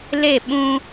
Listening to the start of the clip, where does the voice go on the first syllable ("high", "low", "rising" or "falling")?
falling